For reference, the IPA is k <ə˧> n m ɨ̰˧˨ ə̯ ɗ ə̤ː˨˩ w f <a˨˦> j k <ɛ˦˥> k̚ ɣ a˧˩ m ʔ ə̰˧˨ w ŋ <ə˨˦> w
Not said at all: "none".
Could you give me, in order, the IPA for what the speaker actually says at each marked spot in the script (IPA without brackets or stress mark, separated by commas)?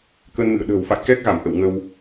ə˧, a̰˧˨, ɛ˦˥, ə˧